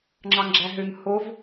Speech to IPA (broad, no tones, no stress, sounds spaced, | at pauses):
ŋ͡ǁ ɑ ŋ ɡ͡ǁ æ ɦ ø ŋ h o v